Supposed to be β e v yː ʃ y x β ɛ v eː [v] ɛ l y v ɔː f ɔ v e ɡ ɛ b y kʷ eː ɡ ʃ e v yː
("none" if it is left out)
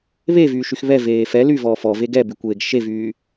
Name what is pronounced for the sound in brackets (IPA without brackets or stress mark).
f